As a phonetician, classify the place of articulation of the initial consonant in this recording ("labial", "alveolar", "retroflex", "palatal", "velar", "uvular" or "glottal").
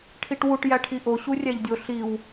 retroflex